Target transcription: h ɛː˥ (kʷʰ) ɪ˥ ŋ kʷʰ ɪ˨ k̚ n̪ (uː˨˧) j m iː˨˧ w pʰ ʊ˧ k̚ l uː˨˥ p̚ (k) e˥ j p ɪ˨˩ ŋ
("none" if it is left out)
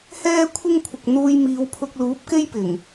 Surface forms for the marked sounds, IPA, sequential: kʷʰ, uː˧, k

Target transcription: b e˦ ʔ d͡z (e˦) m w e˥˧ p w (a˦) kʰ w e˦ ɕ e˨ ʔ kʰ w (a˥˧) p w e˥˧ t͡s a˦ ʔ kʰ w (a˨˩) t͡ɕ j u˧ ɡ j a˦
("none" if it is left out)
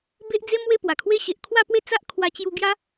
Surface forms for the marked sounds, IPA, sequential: e˦, a˨˩, a˥˧, a˧

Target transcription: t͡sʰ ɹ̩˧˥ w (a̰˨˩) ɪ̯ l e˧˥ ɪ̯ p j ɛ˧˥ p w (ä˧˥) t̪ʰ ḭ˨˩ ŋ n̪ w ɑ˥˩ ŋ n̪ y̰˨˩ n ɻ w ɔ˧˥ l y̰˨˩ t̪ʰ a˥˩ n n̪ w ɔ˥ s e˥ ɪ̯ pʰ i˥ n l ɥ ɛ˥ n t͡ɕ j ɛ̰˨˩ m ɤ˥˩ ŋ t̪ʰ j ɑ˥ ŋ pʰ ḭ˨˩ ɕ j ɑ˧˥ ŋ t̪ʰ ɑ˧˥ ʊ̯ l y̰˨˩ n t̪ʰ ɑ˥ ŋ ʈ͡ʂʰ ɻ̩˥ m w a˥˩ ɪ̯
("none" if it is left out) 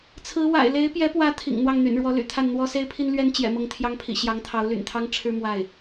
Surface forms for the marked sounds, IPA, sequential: a̰˨˩, ä˧˥

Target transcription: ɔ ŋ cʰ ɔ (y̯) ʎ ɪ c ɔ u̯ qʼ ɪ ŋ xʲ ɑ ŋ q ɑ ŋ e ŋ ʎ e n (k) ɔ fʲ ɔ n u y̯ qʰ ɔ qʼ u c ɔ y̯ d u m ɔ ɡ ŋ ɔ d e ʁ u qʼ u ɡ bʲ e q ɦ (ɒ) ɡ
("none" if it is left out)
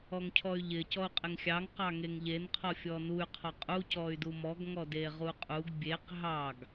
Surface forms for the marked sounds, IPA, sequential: y̯, qʰ, ɑ

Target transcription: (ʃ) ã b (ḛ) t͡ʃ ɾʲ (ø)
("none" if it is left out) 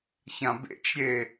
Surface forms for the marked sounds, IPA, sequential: ç, ḛ, e

